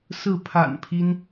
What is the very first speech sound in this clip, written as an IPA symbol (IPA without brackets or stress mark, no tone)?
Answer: s